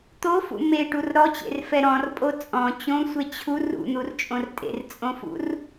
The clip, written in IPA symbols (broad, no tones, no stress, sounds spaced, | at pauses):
t̪ o f ṵ m e ʈ u r ɾ ɔ t͡ɕ ḛ r f ɛ ɾ ɔ̃ r pʼ o t͡sʼ ɔ̃ t͡ɕ õ sʷ e t͡ɕʰ u r ṵ n̪ u r t͡ʃʼ õ r tʼ ḛ r t͡sʼ õ f ṵ r